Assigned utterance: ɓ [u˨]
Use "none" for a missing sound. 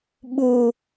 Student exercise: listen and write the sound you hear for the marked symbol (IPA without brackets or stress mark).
u˨